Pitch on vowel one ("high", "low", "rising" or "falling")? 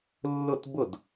falling